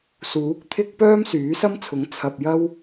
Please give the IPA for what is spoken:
suː˨˥k̚t̪ʰɪ˥k̚ pœː˥msyː˨˥sɐ˥mt͡sʰʊ˨˥ŋ t͡sʰɐ˧p̚jɐ˥w

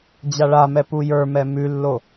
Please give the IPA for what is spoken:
d͡ʑaɭamɛ pujə˞mɛ mʉlːo

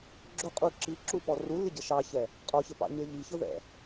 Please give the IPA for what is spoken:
ɡ͡ǁʊqʼu ǁiǁupɔ rulːɪɟə ʃɑçɛ | qʼɔçəpɑ̰ɲə˞ ʎiçʊðɛ̰

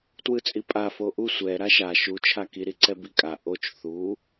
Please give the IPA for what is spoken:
twɯt͡sʼipʼa foʔu sʷɛ ɾaʃa ʃu t͡ʃʰaki ɾiǀɛbikʼa ʔot͡ʃ θu

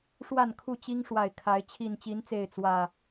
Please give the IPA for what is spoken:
ʂwa˥˨nkʰu˥˨t͡ɕi˦ŋ ʂwa˨˩ɪ̯kʰa˨˦ɪ̯ t͡ɕʰi˨˩nt͡ɕi˨˦nt͡se˨˩ɪ̯ t͡swä˥˨

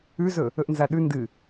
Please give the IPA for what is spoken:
ʉzɵ | ɵʔnzaɗʉ ndɨ

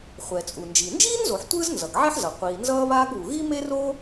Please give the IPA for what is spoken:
χʷɛ˩t͡sʼu˩nd͡ʒi˩ nd͡ʒiː˥nzo˩ħ tʷɯː˥znzʌ˩ɡʕɛ˥ħzʌ˩ qʷiː˩ nzʌː˥βaː˥ɡβu˩ ɣi˥me˥ro˥

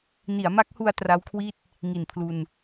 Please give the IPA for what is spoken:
ni˩˦a̯ma˦˥k̚hu˧a̯ tra˦˥wkʰwi˥˩t̚ | ŋi˨˩npʰlu˧n

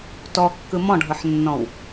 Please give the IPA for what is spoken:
tɔkːɯ mɔ̃ɖʱɤħnːɔ̃w

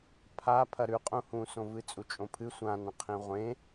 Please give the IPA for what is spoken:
pʰa pʰɐɾʉqʼũ hũsõ vɨt͡sʼut͡ʃʼõpʰɨ sʷãnɐ̃ qʰĩʁʷẽ

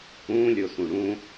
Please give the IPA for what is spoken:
ũlʲosũ ɽũ

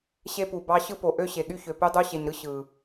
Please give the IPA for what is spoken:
ɕe˦pu˨bɑ˦ ɕɯ˦po˨ ʔø˦ɕe˨ɠy˦ çø˨py˦ dˤu˦ɕe˨ɲɾɯ˦ ɕɯ˨

